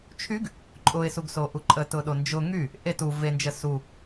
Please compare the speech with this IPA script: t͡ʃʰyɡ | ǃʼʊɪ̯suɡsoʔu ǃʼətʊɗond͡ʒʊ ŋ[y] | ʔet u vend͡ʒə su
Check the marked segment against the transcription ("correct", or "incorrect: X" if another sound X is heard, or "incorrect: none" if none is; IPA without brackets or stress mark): correct